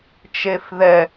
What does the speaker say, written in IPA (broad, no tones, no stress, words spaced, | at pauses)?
t͡ʃefðɛ